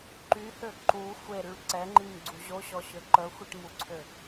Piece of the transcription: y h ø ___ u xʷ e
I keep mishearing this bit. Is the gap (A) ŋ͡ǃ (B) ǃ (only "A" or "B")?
B